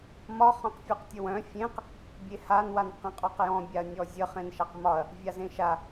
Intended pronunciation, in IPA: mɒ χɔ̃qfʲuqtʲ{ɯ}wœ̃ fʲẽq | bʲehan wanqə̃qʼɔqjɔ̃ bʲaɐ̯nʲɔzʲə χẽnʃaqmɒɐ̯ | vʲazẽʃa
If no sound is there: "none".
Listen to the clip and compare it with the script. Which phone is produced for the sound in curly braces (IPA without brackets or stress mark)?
ə